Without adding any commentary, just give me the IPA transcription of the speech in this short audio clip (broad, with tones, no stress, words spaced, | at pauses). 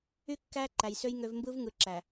y˦kːæ˦ ǃæ˨jsø˦j ŋø˦v mbɯ˦vŋɯ˨ ǁæ˨